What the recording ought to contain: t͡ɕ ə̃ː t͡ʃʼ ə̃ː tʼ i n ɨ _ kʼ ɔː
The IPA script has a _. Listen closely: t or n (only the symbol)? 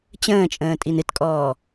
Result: t